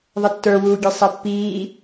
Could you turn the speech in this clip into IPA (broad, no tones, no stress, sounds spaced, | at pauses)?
ðˤ ɘ tː ə˞ w uː ɡʲ e sˤ ɛ pː iː